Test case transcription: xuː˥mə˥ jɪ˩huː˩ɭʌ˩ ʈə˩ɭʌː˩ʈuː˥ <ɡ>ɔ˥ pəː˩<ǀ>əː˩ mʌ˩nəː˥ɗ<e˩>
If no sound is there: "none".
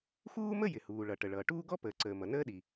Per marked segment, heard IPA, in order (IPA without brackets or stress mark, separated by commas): ɡ, ǀ, i˩